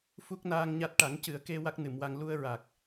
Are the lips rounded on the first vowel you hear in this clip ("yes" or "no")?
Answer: yes